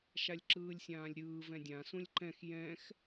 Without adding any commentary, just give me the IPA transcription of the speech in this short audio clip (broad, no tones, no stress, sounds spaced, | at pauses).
ʃ a lʲ ǁ ɯː lʲ sʲ ãː lʲ ɾʲ ɯː v ɛ̃ dʲ ã s ũ lʲ ǃ ɛ̃ x j ɛ̃ x